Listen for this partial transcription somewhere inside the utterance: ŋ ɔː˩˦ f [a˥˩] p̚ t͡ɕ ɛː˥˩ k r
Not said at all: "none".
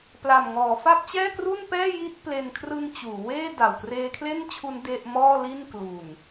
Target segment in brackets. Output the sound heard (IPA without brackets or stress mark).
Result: a˥˩